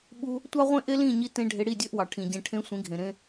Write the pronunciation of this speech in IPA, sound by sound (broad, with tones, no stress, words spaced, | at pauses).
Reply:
ɓu˧ | tʷɑ˦ʁʷẽ˦ ʔe˦lĩ˦˨ɲi˧tẽ˧ ɖʱe˧ ɽi˦˨dʲø˦ʔwɑ˨ ʈʰĩ˨ɟẽ˧ ʈʰẽ˧ sʷĩ˨˦ɡʱẽ˨ ɾẽ˧